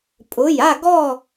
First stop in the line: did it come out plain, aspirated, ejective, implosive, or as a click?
ejective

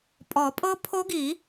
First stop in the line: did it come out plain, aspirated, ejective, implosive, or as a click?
ejective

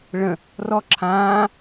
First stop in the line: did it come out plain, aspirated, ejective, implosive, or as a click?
click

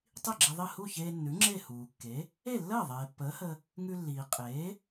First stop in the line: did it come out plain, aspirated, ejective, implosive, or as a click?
plain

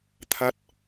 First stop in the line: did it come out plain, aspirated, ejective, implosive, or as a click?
aspirated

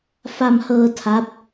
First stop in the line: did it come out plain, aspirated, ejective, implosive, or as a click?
aspirated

